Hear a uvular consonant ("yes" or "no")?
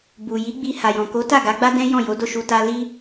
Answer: no